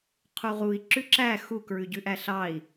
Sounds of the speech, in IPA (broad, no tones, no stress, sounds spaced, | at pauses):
qʰ u ʁ u i̯ ǁ ʉ ǁ æ x u k ɹ ʉ ɟ ʉ ʔ æ ɬ ɑ i̯